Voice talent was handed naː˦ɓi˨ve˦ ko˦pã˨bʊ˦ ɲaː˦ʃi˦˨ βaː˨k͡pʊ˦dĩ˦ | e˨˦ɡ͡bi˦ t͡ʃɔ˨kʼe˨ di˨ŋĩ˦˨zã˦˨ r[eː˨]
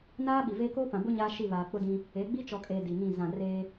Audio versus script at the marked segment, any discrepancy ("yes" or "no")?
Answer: yes